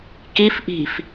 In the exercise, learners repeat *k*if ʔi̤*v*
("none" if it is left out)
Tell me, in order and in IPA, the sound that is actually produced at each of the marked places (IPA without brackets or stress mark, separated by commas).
k, f